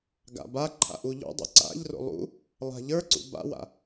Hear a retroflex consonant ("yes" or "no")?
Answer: no